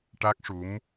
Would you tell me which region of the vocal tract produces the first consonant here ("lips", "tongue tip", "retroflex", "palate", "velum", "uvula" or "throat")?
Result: retroflex